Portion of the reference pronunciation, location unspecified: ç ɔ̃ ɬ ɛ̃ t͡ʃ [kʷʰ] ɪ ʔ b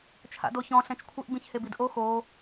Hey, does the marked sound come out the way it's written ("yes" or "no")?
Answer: yes